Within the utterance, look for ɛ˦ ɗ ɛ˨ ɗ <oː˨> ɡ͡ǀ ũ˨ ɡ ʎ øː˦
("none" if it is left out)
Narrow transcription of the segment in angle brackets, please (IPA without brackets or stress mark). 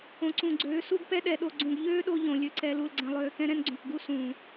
o˨